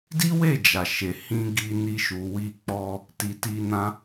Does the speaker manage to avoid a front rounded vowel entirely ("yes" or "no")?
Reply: yes